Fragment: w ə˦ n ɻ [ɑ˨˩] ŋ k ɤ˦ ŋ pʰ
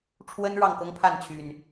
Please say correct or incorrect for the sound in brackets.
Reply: incorrect